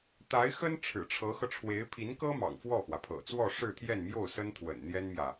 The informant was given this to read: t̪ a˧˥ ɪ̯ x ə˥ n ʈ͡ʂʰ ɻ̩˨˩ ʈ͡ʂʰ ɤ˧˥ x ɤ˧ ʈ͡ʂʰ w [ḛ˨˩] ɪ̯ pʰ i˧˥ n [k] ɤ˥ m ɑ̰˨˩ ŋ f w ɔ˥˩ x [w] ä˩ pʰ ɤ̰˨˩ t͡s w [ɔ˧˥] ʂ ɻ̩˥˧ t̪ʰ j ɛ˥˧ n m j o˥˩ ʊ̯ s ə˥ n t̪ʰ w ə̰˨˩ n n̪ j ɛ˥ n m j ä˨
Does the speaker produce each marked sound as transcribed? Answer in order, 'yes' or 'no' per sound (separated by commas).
no, yes, yes, no